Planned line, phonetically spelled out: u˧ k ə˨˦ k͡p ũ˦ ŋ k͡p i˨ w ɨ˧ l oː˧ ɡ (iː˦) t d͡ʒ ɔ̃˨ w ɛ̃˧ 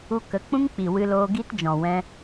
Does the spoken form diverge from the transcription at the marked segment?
yes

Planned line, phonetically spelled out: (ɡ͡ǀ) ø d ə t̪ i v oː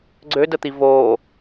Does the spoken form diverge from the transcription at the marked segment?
no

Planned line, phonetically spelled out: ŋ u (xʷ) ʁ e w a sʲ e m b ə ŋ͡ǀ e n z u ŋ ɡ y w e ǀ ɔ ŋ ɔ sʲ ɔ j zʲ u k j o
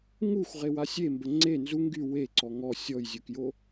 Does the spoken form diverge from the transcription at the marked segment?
no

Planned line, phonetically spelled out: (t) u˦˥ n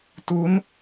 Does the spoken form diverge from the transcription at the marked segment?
no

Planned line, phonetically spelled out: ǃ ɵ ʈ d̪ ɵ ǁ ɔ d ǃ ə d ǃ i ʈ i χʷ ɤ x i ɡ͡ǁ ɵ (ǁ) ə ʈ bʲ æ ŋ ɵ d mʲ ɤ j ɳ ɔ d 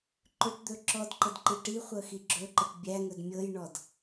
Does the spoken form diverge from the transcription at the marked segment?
yes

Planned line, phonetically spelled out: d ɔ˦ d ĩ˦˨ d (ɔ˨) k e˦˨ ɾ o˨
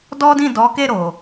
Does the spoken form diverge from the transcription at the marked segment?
yes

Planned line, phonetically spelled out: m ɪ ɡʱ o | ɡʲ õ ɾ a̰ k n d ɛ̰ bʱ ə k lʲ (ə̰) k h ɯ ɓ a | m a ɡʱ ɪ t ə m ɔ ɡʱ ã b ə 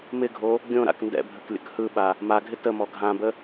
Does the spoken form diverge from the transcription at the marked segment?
no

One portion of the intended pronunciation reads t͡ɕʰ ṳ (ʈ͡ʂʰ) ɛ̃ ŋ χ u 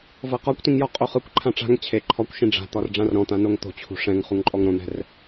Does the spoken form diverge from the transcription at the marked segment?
yes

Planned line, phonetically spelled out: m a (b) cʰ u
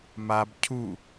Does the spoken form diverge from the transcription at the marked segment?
no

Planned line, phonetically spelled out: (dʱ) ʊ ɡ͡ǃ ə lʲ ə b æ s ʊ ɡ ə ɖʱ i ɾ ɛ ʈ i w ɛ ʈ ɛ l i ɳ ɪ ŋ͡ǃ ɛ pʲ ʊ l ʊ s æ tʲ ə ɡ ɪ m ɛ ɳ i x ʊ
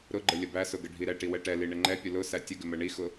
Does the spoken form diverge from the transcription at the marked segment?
yes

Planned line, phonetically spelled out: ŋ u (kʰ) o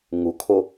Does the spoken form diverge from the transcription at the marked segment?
no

